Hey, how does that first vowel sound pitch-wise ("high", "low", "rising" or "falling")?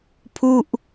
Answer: falling